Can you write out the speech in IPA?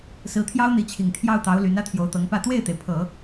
s ɹ̩˧˥ t̪ʰ j ɑ˥ ʊ̯ n̪ i˧˥ t͡ɕʰ i˨˩ ŋ t̪ʰ j ɑ˥˩ ʊ̯ t̪ ɑ˧˥ ʊ̯ l y˧˥ n ä˥ t̪ʰ j o˧˥ ʊ̯ t̪ ɤ˧˥ ŋ p ä˥˧ t̪ w e˥˩ ɪ̯ t̪ e˩ ɪ̯ pʰ ɤ˨˩˦

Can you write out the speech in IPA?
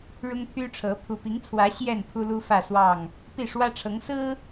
ɻ ʊ˦ ŋ t̪ʰ y˦ ʈ͡ʂʰ ɤ˨˦ pʰ u˨˩ p i˨˦ ŋ t͡sʰ w ä˨˦ ɕ j ɛ˥˨ n pʰ u˦ l u˦ f ä˥˨ s w ɑ˥˨ ŋ | p i˥˨ ʂ w ä˦ ʈ͡ʂʰ ɤ˨˦ ŋ s ɹ̩˦

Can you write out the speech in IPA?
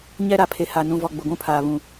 ɲ ɛ˦ ɾ a˨ pʰ e˨ h a˨ n ũ˨ v ɔ˨ ɡ͡b ʊ˨ ɡʷ ũ˦ pʰ aː˨ β ũ˨

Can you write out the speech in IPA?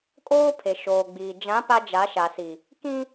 kʼ oː˦ pʰ e˨ ʃ oː˨ ɡ͡b iː˨ d͡ʒ ã˨˦ p a˦ d͡ʒ a˨˦ ʃ a˨ s i˨ | k ĩ˦

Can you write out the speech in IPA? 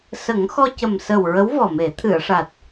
s ə˨˩˦ ŋ x ɔ˧ c ə˨˩ m s ə˨˩ w ɹ ə˧˥ w v ɔ˨˩ m e˨˩˦ t̪ʰ ɨ˨˩˨ ə̯ ʂ a˨˩ t̚

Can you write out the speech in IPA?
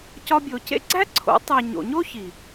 c ɒ˧ bʲ o˨ c ḛ˦ ɡ͡ǀ æ˦ ǀʰ o̰˨˦ tˤ e˨ ɲ o̰˨ ɲ o˦ ç i˨

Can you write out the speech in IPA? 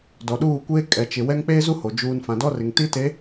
d ɔ˨ ɗ uː˦˨ kʷ eː˦ kʼ ɛ˨ t͡ʃ ɪ˨ w ɛ˦ ŋ k͡p eː˦ z u˦ h o˨ d͡ʒ uː˦ n f ã˨ d ɔ˦ r ɪ˨ ŋ t i˦ t e˨˦

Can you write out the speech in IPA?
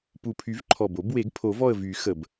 p u˨˩ pʰ y˨˩˦ v ǃʰ ɔ˨˩ b o˨˩˦ b w e˨˩˦ ɡ pʰ o˨˩˦ v ɔ˦˨ ə̯ v y˨˩˦ x ə˨˩ b

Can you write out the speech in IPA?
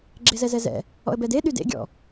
ɡ͡ǁ e z ɛ z ɛ z ɛ̰ | ɔ̰ ə̯ b ɛ d e ɗ y d ḛ ɡʲ ɔ̰

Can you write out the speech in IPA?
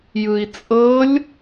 j ɯ i̯ t͡sʼ ɤ lʲ

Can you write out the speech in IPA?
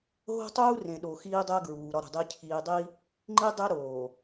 ɦ o̤˦ tˤ uː˦ r ẽ˨ ɗ o˨ x iː˦ dˤ æ˦ ɡ ɹ uː˨ ɾ ɒ˦ ɾ ṳ˨ dˤ i˦ cʰ iː˨ dˤ i˦ | ŋ͡ǃ i˦ dˤ e˦ ɾ oː˨

